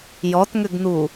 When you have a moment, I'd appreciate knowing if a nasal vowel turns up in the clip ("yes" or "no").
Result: no